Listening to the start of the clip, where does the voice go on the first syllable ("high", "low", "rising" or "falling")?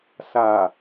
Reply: low